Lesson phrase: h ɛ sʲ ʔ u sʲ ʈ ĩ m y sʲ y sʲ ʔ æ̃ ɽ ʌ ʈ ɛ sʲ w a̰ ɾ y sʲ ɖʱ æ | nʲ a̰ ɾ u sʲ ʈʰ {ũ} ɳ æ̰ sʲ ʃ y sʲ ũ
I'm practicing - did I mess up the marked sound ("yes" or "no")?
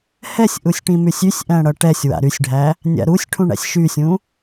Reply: no